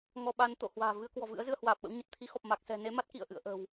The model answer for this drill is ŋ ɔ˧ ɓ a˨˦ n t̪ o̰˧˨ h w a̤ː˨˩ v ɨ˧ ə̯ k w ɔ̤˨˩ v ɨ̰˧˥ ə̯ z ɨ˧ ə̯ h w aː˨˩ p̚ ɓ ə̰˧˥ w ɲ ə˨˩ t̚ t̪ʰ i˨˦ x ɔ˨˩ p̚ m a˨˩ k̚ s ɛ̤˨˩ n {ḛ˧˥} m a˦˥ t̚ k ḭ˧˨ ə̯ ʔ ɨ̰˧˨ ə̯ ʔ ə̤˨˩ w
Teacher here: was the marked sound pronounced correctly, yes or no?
no